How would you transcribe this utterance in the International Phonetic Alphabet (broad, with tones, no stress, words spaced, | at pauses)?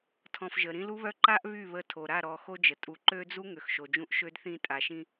tʰɔ̃˨f ʒə˨ ɾĩ˦lu˦βœ˦ ǃa˦ʔ βy˦˨βə˦˨ tʰo˨ɾa˦˨ ɾɔ˨ xo˦d͡ʒə˨ tʼu˨ǃø˦d͡zu˦ ŋø˨xʃo˨d͡ʒũ˦ʔ ʃø˦dθĩ˦˨ tʼa˨ʃĩ˦